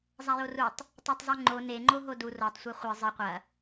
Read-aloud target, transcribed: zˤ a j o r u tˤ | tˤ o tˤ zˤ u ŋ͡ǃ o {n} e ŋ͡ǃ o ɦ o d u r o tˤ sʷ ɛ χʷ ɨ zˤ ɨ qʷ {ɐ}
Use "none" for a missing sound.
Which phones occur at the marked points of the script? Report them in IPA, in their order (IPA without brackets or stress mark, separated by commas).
n, ɐ